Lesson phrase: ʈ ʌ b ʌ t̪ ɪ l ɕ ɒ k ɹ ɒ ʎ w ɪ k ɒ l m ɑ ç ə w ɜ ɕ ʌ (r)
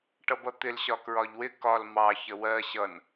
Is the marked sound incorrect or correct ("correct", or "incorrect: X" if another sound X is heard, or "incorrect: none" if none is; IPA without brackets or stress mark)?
incorrect: n